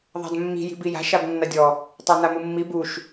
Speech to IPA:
ðˤ a̤ d mː i̤ j i̤ b i j a̤ ʃ a b nː a dʲ ɔ | tˤ a n a m u mː i b u ʃ

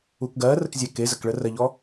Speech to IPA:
u k ɡ ɜ r ə k zʲ ɛ k e z ə k ɭ ə r ɜ ʎ ɔ

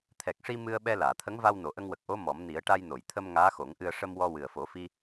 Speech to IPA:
t̪ʰ ɛ˨˩ k̚ ʂ i˧ m ɨ˧ ə̯ ɓ ɛ˧ l aː˨˩˨ t̪ʰ ə˧˥ ŋ v a˧ w n o˨˩˨ ʔ ə˧ ŋ w ə˨˩ k̚ ʔ o˧˥ m ɔ˨˩˦ m n i˨˩˦ ə̯ ʈ a˧ j n o˨˩˨ j t̪ʰ ə˧ m ŋ aː˧˥ x o˨˩˦ ŋ ʔ ɨ˧ ə̯ ʂ ə˧ m w ɔ˧ w ɨ˨˩ ə̯ f o˨˩˦ f i˧

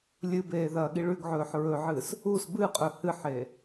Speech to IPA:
lʲ ɨ b eː ð ɐː ɠ i ɭ ʉ ɡ ʕ ɵː ħ ɹ ɵ ʕ ɨ s | u s b ɨ qʼ ɵ h ɨ ħ e

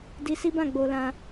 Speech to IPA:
d i˧ s i˦ b ã˦˨ ɡ͡b o˧ l ã˧

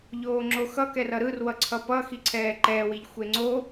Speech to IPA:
ʎ oː ŋ͡ǁ o x ʌ k ɛ r ʌ ɾ ɯ r w ʌ ǀʰ ʌ p ʌ x i ǀʰ ɛː ǃ ɛː w i ʎ xʷ e ŋ͡ǀ o

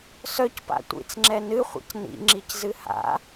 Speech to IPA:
s œ c p a̰ tʷ ḭ t͡s ŋ͡ǁ ɛ n ɨ χʷ ɛ̰ c n ḭ ŋ͡ǁ i c z ɨ h a̰

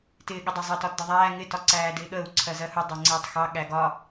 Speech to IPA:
t ɪː ɠ ɪ dˤ ə zˤ əː t ɒ t d ə ðˤ æː ŋ ɪ t ɒ ǀ æː d ɪː ɠ əː u̯ ǀʰ ɜ z ɜ h u dˤ ɑ ŋ͡ǀ ɪː tˤ x ɑ ɠ æ ɡ ɒ

